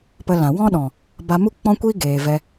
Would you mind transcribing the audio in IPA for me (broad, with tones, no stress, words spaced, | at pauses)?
pə˧ lã˨ wɔ̃˦ɗɔ̃˨ | ba˧mu˦k͡pɔ̃˦kʷiː˦ ɡeː˨vɛ˧